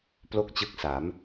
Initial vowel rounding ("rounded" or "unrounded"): rounded